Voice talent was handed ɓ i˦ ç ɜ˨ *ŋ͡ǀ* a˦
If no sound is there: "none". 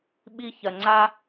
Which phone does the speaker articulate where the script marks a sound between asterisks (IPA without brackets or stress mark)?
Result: ŋ͡ǀ